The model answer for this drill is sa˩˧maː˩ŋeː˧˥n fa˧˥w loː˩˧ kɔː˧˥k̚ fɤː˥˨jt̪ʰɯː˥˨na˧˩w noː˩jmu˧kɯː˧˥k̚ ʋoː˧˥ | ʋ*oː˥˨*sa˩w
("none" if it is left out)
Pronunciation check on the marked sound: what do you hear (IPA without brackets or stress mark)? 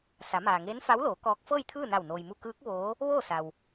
oː˥˨